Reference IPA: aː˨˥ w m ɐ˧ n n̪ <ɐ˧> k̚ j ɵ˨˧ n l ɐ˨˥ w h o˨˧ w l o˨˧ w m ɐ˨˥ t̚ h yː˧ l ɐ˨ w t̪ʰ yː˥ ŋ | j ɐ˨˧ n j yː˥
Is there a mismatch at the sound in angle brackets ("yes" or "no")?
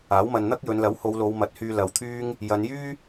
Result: yes